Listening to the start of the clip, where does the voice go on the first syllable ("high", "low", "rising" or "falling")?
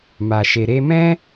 low